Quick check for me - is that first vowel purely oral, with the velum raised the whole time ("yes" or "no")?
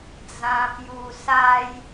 no